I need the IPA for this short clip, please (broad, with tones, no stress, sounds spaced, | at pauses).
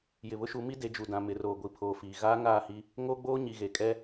j ɪ˨ β ʊ˦ ʃ u˨˦ m i˦ d e˨˦ d͡ʒ u˨ d ã˨ m ɪ˨ r oː˨ ɡʷ i˨ pʰ oː˨ f iː˨ ɣ aː˦ ŋ aː˦˨ h i˦ | ŋ oː˦ ɡ͡b oː˦ ɲ i˨ ɣ e˨ kʼ ɛ˦